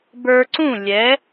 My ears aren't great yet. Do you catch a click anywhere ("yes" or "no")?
yes